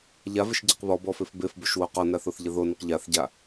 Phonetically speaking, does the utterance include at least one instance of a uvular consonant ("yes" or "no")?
yes